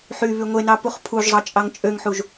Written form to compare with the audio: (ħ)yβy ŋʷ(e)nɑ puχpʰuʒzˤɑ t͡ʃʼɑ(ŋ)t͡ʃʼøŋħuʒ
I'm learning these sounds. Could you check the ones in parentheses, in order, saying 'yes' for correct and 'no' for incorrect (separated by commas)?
yes, yes, yes